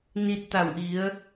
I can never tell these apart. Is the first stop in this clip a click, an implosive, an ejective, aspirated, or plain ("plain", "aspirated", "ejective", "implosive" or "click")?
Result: plain